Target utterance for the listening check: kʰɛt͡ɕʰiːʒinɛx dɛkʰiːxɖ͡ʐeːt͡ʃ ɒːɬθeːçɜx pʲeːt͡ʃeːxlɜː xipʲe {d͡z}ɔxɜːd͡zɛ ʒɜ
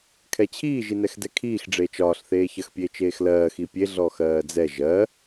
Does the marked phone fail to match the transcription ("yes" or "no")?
yes